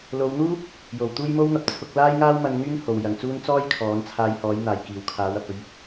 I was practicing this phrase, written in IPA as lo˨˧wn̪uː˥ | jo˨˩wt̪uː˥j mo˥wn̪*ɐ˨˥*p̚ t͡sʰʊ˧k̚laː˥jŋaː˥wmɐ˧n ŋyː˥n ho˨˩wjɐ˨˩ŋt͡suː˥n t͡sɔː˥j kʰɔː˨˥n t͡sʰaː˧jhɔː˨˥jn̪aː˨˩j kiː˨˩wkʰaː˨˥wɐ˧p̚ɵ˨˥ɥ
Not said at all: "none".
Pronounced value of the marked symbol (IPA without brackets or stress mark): ɐ˨